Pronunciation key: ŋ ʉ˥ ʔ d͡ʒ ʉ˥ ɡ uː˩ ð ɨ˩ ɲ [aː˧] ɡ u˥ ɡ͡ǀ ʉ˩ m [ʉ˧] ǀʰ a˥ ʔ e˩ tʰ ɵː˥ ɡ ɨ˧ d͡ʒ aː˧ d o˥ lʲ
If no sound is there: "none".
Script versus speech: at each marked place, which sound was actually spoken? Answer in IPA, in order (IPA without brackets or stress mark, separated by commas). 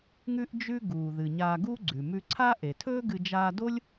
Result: aː˧, ʉ˧